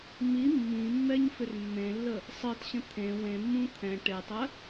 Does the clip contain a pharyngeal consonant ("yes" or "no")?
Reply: no